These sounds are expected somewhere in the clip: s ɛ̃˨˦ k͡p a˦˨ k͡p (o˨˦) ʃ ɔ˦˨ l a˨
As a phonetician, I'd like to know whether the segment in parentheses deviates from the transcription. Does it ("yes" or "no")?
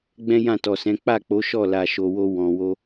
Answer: no